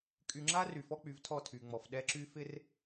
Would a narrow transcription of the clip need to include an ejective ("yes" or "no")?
yes